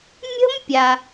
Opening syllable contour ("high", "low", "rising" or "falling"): high